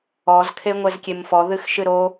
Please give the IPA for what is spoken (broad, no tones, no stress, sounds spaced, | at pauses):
ɔ z kʰ e ŋʷ ɛ z kʲ e m f ɔ ð ɨ x ʃ ɨ ɾ o